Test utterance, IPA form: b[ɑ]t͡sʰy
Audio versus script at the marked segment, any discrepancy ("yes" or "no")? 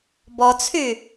yes